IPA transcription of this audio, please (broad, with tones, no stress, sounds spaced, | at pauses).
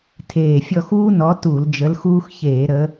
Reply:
tʰ eː˨˩ fʲ ɔ˦˨ x uː˦ n ɔ˨˦ t u˧˩˧ l d͡ʒ ə˨˦ l x uː˦ x ç eː˧˩˧ ɾ ə˨˦